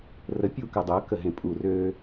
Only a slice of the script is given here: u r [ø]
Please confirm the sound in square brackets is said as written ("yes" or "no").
yes